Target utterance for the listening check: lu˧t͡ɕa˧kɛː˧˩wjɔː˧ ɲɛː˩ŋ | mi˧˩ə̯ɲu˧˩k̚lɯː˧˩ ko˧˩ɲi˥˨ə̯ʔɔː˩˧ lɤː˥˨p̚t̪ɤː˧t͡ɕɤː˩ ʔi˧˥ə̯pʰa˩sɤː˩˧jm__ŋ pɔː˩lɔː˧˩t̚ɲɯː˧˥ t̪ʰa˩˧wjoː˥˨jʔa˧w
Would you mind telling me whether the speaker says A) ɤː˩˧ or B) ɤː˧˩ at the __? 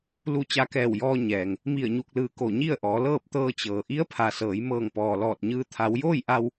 B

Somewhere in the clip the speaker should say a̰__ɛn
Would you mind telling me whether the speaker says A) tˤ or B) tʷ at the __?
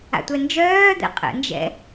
B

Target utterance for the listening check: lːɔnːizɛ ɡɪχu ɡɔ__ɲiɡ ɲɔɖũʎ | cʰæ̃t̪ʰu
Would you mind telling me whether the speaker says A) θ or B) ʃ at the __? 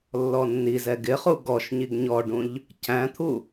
B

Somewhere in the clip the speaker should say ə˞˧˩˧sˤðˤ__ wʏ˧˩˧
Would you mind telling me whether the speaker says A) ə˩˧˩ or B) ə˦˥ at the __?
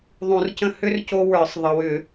A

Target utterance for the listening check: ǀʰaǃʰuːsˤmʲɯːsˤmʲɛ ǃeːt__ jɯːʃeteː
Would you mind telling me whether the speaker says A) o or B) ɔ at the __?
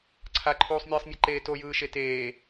A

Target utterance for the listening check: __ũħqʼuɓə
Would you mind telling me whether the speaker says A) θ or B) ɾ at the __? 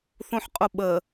A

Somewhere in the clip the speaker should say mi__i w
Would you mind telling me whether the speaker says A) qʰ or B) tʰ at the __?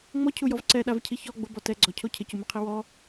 A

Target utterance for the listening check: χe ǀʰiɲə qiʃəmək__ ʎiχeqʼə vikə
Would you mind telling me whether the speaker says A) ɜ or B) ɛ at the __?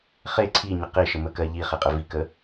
A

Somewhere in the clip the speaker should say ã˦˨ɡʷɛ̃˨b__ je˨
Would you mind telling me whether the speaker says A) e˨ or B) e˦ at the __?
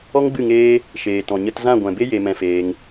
B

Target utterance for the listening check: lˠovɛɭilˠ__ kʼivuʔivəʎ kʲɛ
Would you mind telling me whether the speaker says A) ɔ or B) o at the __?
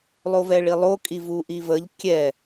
B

